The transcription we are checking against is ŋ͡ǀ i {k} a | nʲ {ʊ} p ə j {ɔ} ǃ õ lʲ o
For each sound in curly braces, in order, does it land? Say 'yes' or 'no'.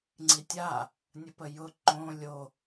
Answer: no, no, no

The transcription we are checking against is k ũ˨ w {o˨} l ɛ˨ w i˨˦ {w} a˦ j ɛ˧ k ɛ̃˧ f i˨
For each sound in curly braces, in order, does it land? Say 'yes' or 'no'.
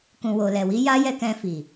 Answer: yes, no

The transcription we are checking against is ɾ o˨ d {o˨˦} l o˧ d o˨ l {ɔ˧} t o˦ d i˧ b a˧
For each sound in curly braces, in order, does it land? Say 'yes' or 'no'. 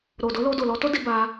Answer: yes, yes

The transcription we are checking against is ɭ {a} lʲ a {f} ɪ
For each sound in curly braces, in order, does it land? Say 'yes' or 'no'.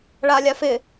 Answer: yes, yes

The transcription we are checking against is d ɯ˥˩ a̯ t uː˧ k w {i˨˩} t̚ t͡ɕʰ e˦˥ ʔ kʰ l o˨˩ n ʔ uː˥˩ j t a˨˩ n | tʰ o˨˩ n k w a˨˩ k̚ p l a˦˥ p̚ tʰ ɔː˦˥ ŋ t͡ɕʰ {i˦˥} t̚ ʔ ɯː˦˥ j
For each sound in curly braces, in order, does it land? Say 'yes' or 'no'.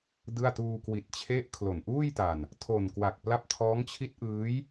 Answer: yes, yes

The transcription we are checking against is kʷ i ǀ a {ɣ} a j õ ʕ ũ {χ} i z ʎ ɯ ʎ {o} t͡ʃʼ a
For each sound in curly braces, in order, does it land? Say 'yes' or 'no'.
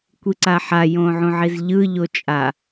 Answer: no, no, yes

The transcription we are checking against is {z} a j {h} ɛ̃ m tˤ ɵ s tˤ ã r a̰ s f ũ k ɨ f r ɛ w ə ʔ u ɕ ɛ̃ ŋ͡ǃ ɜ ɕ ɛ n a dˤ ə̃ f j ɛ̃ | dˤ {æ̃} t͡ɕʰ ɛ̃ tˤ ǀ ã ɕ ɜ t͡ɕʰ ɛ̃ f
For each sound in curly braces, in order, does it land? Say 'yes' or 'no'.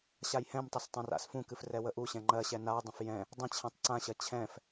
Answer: no, yes, no

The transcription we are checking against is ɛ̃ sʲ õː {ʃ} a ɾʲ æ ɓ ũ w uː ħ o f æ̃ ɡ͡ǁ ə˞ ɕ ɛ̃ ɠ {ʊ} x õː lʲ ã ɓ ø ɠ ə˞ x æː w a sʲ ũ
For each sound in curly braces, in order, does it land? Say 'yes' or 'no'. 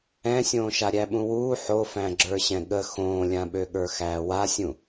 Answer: yes, no

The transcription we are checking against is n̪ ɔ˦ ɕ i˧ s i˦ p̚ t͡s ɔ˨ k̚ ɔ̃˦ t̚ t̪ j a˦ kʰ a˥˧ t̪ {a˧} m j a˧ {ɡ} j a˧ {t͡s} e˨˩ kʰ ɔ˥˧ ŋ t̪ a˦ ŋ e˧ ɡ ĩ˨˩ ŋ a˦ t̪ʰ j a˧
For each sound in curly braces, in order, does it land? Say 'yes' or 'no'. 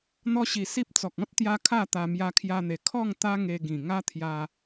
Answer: yes, no, no

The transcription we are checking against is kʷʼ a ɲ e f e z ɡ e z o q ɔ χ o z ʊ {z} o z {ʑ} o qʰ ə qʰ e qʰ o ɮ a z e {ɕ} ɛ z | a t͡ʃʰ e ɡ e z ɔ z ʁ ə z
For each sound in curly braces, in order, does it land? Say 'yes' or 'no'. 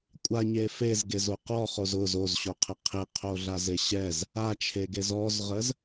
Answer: yes, no, yes

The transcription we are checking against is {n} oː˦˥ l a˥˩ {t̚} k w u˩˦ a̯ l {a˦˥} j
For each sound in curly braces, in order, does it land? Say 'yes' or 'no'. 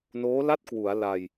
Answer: yes, yes, no

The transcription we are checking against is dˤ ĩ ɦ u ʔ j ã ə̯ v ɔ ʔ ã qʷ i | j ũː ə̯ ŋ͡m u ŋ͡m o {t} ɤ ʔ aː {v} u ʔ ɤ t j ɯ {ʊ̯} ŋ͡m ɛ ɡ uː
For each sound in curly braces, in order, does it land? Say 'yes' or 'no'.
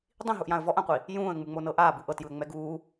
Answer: no, no, no

